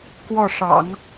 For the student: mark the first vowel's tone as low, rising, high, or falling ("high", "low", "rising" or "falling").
falling